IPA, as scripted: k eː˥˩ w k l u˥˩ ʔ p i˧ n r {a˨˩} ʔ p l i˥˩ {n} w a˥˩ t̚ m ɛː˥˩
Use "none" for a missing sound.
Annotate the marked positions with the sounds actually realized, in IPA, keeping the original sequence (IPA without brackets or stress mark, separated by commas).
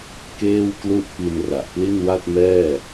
a˨˩, n